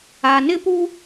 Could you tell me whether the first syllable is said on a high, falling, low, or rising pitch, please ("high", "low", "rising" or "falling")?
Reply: low